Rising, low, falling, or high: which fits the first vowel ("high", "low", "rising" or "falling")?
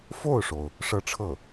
falling